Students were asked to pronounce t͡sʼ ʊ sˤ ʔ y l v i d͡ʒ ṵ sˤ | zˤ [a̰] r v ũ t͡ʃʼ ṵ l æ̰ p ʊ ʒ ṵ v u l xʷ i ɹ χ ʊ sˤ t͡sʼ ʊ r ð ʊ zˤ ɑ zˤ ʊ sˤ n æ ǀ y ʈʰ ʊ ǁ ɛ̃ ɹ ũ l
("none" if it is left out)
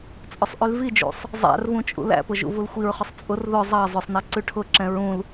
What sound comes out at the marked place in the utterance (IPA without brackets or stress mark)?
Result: æ̰